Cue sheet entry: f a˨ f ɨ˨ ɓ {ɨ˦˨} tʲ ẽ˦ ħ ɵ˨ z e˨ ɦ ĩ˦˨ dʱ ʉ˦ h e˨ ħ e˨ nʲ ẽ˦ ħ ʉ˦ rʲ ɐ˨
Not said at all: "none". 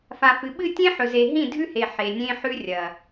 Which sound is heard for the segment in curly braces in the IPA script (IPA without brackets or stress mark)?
ɨ˦˨